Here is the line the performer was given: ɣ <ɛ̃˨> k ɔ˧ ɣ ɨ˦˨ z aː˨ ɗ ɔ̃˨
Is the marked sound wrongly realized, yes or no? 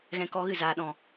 yes